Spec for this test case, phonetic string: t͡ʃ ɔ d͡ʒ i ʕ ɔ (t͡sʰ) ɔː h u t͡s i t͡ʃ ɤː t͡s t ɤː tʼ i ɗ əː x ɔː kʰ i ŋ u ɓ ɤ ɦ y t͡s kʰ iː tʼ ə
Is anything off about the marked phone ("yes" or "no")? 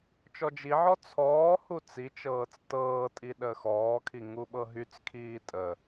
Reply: no